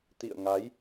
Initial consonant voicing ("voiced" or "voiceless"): voiceless